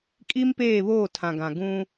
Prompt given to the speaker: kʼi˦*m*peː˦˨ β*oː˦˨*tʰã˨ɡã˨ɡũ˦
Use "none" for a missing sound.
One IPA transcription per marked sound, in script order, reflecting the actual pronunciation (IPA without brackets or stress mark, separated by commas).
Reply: m, oː˦˨